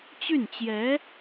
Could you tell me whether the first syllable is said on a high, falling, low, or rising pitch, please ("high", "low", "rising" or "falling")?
falling